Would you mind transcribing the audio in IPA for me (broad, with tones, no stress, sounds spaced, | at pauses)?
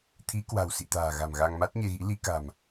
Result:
t̪ʰ i˨˦ k w a̤˨˩ w s ḭ˧˨ t̪ a̤ː˨˩ ɣ a̤˨˩ m ɣ a˧ ŋ m a˦˥ t̚ ɲ e˧ ɣ ḭ˧˥ l i˨˦ k a̤˨˩ m